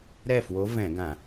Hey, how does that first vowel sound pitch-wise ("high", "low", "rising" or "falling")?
falling